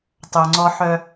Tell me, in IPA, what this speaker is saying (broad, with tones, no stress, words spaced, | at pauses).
tˤœ˨ŋ͡ǀɔ˦ ħœ˦